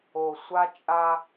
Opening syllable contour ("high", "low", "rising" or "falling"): low